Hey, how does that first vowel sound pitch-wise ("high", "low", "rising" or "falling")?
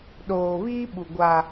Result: low